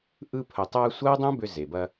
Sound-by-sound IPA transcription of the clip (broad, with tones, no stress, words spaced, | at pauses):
ʔɯ˧pʰə˩tˤɐː˧ sʷɐː˥dˤõ˥bʏ˧ ze˩bɐ˧